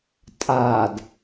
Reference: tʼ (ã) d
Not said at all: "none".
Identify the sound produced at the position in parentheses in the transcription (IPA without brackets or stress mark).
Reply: a